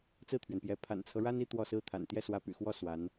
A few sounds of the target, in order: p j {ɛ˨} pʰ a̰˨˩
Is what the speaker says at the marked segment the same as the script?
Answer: no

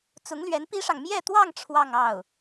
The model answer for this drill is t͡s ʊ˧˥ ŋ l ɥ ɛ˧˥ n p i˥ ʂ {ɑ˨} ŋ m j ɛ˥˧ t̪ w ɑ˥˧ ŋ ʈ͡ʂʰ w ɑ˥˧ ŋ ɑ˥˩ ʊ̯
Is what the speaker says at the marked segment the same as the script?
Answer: yes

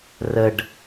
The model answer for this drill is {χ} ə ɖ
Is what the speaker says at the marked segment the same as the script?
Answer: no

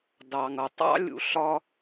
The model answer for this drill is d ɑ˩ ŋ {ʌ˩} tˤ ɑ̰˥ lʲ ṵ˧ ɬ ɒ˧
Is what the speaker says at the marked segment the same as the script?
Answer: yes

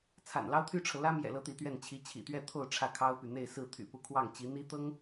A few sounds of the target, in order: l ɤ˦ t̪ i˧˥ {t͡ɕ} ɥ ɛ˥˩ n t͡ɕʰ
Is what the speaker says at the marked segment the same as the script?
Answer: no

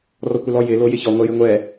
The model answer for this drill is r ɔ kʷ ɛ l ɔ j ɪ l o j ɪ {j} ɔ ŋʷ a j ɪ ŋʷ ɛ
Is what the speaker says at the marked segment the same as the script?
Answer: no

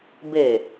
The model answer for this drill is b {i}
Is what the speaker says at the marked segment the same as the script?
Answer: no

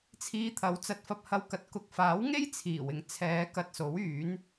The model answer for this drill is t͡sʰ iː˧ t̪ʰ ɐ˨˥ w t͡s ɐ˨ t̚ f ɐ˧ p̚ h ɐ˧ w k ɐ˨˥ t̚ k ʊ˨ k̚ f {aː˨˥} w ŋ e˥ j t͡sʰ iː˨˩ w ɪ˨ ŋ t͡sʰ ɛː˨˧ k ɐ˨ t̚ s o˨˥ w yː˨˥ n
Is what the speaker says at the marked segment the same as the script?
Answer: yes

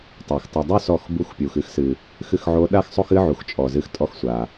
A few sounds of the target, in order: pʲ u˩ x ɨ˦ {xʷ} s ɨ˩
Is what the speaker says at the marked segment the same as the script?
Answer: no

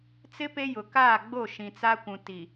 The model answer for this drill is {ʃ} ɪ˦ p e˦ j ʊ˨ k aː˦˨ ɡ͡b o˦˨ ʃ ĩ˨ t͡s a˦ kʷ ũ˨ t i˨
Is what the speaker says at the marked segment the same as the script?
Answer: no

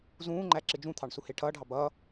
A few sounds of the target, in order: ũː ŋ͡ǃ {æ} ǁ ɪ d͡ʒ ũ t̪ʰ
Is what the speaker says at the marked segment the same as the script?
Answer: yes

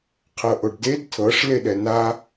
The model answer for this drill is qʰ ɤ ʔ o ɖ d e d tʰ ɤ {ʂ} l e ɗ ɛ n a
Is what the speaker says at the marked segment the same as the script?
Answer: yes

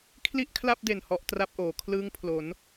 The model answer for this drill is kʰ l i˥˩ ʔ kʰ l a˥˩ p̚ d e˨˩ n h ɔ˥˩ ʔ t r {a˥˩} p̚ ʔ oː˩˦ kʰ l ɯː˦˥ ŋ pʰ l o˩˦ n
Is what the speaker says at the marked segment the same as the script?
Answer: yes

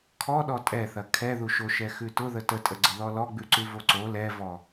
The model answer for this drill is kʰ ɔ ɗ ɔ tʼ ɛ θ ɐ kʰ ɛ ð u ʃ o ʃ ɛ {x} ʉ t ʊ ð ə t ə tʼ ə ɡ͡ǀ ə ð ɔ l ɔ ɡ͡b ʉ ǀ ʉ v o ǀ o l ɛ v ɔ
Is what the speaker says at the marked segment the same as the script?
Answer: yes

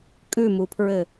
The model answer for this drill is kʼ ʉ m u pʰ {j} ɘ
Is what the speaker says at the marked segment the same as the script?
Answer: no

